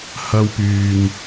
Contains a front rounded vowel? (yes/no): yes